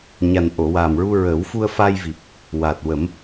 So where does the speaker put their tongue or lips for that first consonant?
palate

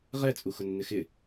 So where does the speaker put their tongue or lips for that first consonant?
uvula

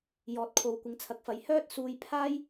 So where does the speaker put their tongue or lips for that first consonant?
palate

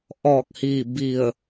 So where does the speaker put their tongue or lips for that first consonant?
throat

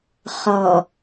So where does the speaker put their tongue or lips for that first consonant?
uvula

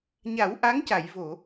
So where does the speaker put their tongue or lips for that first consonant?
palate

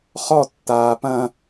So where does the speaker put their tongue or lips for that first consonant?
uvula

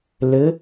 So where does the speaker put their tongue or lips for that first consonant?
tongue tip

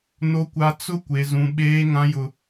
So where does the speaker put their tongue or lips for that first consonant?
tongue tip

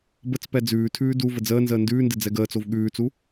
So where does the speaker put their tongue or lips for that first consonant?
lips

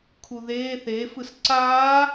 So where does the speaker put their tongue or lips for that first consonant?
velum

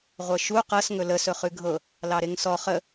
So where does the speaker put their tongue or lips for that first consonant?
uvula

